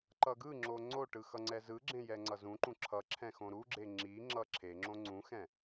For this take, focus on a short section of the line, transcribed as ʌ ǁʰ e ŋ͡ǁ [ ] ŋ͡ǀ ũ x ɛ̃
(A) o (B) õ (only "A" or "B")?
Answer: B